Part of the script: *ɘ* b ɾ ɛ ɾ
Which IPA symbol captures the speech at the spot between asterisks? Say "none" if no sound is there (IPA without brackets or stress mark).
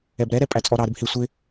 ɛ